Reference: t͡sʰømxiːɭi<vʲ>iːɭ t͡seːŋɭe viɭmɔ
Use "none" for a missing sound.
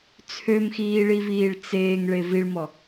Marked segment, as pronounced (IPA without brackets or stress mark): v